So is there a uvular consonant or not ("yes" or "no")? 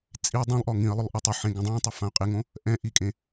yes